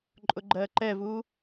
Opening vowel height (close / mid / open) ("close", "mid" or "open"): close